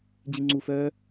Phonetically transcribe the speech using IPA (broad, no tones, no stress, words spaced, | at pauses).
d͡ʑiŋ͡ǀufœː